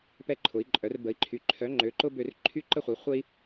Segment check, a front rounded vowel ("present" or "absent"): present